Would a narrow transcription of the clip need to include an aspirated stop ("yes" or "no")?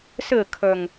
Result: yes